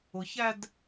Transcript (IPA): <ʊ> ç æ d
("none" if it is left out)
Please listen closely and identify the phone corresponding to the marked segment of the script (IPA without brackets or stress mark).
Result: ʊ